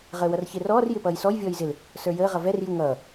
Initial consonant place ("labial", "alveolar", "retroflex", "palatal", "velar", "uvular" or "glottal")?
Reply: uvular